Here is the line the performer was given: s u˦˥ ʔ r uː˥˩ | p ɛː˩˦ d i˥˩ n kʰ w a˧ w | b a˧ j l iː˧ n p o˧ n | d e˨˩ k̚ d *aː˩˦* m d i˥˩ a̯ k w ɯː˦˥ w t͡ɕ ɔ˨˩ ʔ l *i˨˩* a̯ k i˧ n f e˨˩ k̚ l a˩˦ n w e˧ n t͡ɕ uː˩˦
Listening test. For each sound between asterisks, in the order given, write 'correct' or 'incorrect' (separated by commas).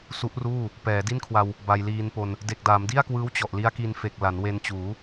correct, incorrect